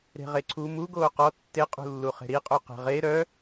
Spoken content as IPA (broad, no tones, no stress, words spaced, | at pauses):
ɾe̤ʁeǀʰu muɡoː qɔ tːeqʼṳlːu χe̤ɾiqʼo qe̤ʁe ɾœ